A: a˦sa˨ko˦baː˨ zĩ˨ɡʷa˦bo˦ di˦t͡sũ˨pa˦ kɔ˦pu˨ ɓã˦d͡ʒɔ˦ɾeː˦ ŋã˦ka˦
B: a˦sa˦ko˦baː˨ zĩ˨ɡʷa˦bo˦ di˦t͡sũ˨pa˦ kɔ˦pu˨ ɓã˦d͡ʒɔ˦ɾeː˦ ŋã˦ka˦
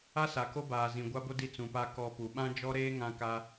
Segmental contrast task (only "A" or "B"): A